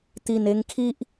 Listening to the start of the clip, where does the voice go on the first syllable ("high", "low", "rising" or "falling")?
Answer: low